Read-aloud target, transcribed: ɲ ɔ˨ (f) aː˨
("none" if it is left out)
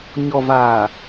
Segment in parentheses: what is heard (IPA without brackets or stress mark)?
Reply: v